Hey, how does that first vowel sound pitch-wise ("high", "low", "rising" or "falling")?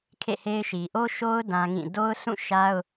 falling